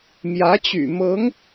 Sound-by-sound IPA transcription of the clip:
m j ä˧˥ t͡ɕ y̰˨˩ m ɤ˧˥ ŋ

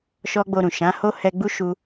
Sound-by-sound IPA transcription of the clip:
ʃ ɔ˦ ɡ͡b o˧ ɾ ũ˨ ʃ ã˨˦ h o˦ h ɛ˧ ɡ͡b u˦ ʃ u˦

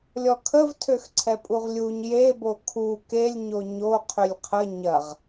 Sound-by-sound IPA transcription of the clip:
lʲ ɔ kʰ ə v tʰ ø x ǀʰ ɛ pʼ u ʁ lʲ u ɲ j e b o kʰ u k e lʲ ɲ o ɲ o qʰ ʏ lʲ qʰ ə ɲ ɐ ʁ

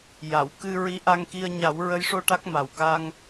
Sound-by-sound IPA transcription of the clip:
j a˨˩˨ w k ɨ˧ ɹ i˧˥ ʔ a˧ ŋ k i˧ ə̯ ɲ a˨˩˦ w ɹ ə˧˥ j ʂ o˧ ʈ a˦˥ k̚ m a˨˩ w k a˧ ŋ

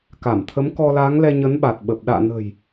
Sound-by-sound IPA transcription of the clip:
k a˧˩ m t̪ʰ ə˨˦ m k ɔ˧ l aː˨˦ ŋ l ɛ˧ ɲ ə˨˦ n ɓ a˨˩ t̚ ɓ ə˨˩ p̚ ɗ a̰ː˧˨ n ə̤˨˩ j

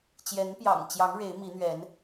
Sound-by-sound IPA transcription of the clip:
t͡ɕ j ɛ˨˦ n p j ɑ̰˨˩ ŋ t͡ɕ j ɑ˨˦ ŋ ɻ e˨˦ ɪ̯ m i˨˦ n̪ ɥ ɛ˨˦ n

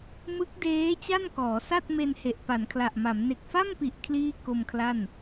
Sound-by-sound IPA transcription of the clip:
m ɯ˦˥ k̚ d eː˦˥ t͡ɕ a˥˩ n k ɔː˩˦ s a˥˩ t̚ m e˧ n h e˨˩ ʔ p a˩˦ n kʰ l a˨˩ ʔ m a˩˦ m n e˨˩ k̚ f a˥˩ m p i˨˩ ʔ kʰ l iː˥˩ k o˧ m kʰ l a˥˩ n

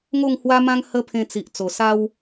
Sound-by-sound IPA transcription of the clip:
ŋ o˥˧ ŋ h w a˦ m ã˦ ŋ h ə˦ pʰ ẽ˧ t͡s i˨ ʔ t͡s o˨˩ s a˦ w

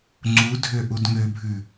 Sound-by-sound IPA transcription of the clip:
ŋ͡ǀ u dʱ ø ʔ u d ŋ ø bʱ ʉ

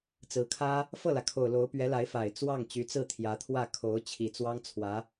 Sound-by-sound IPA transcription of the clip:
t͡s ɹ̩˧˥ kʰ ä˥ | f ɤ˥˩ l ä˩ kʰ o˨˩ ʊ̯ l o˧˥ ʊ̯ p ɥ ɛ˧˥ l a˧˥ ɪ̯ f a˨˩ ɪ̯ t͡s w ɑ˥˩ ŋ t͡ɕ y˧˥ t͡s ɹ̩˥˩ t̪ʰ j ä˧˥ t̪ʰ w ä˥˩ kʰ o˧˥ ʊ̯ t͡ɕʰ i˨˩ t͡s w ɑ˥ ŋ t͡sʰ w ä˧˥

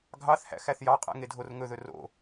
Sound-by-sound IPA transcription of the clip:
ɡʱ ɑ θ h æ̰ x æ θ j ɑ qʼ æ̰ ŋ e dʱ o r ŋ ɵ ð ɵ r o̰

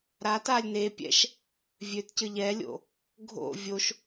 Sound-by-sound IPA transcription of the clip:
ɾ a t a lʲ n e pʲ ɛ̰ ʃ | vʲ ø t c ɘ ʎ ɛ lʲ o̰ | ɡʱ o̰ vʲ o ʃ

